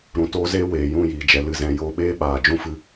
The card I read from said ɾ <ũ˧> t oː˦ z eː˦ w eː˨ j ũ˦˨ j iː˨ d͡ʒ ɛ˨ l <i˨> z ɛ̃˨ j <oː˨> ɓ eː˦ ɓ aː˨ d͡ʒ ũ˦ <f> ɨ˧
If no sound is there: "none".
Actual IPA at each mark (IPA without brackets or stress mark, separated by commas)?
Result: ũ˧, ɨ˨, oː˧, f